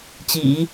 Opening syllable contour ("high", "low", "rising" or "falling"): low